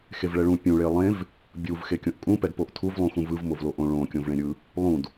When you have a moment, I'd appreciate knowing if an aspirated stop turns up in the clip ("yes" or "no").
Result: yes